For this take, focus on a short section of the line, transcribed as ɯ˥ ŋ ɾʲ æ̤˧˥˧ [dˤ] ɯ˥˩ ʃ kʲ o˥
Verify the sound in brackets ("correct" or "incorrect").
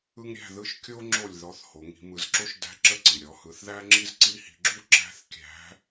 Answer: incorrect